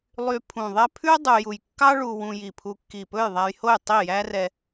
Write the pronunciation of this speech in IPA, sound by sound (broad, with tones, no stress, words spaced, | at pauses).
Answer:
lˠy˧ pʰũ˨˩ðˤɛ˥ pʰʉ˥ dˤu˧ ju˨˩jkːɑ˥ ɭu˧ wũ˧ji˨˩pʰu˧ kːi˨˩pɵ˥˨jðˤæ˧jho˥˨j tˤi˥˨jæ˥rɛ˧